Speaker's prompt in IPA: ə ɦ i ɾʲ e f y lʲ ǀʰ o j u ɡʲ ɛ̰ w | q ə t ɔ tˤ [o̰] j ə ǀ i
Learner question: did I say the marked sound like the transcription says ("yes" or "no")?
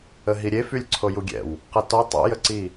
yes